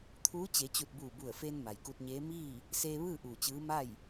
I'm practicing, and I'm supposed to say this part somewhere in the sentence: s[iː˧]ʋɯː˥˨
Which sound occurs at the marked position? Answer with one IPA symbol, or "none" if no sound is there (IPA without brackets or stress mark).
eː˧